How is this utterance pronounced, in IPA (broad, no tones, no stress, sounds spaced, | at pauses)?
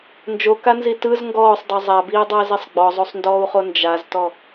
n d͡ʒ o k a n z i t ɯ z ŋ ɡ ɔː sˤ dˤ o zˤ a b iː dˤ ʌː z i sˤ ɡ͡b ɔ zˤ o sˤ n d ɔː u̯ χ o n d͡ʒ a z t ɔ